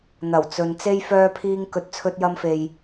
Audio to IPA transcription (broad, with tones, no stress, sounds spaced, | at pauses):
n̪ ɐ˨˩ w t͡s ɵ˨ n t͡s e˥ j f œː˧ pʰ iː˧ ŋ k ɵ˨ t̚ t͡sʰ ɵ˧ t̚ j ɐ˧ m f e˨ j